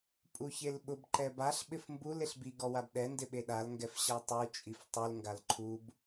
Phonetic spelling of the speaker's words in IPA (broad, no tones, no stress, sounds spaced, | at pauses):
pʼ u ç e l ɓ ʊ b ǃ ɛ b a ɬ ɓ ɪ f m b u l e ɬ b i ɡ ɔ w a b ɗ ɛ n d ɪ ɓ e ɗ a l ŋ ɡ ɛ f ɕ a tˤ u t͡ʃʼ i f tˤ u l ŋ ɡ a l ǃʰ u b